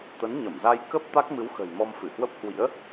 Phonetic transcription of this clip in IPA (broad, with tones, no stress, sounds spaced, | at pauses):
t̪ ə˨˦ n ɲ ə˧˩ m z a˧ j k ə˦˥ p̚ t̪ a˦˥ k̚ m ɨ˨˦ w x ə̤˨˩ j m ɔ˧ m f ɨ˧˩ h w ə˦˥ p̚ h w ḭ˧˥ ə̯